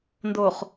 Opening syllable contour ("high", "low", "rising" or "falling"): low